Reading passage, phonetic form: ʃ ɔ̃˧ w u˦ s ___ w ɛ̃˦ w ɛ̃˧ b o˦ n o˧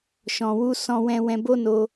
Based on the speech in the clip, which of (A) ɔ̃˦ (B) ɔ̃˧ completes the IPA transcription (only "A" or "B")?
A